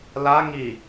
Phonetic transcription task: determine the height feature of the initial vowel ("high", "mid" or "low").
low